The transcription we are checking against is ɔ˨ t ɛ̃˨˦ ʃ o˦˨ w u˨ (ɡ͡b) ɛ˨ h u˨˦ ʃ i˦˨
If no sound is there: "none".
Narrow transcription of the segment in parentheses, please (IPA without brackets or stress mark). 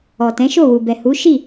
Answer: b